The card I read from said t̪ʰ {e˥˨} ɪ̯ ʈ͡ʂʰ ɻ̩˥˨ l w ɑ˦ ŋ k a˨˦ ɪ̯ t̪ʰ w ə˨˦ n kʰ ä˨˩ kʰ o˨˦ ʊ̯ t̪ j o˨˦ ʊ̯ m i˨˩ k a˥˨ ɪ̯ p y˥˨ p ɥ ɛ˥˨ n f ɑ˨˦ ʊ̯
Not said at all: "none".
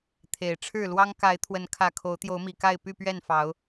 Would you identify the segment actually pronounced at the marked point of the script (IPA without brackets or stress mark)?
e˨˩